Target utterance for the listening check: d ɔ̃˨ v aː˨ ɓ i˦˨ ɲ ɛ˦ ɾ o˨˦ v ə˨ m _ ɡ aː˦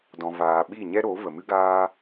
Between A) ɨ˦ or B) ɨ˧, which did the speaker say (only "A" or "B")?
A